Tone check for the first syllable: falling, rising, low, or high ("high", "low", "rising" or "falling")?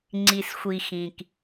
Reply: low